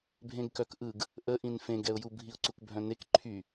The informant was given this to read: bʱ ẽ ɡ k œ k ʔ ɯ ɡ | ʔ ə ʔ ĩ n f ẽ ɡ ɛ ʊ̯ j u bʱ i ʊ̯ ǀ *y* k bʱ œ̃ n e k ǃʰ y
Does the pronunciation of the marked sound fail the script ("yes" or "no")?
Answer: yes